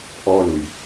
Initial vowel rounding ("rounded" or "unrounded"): rounded